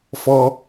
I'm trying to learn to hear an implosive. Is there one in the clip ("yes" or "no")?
no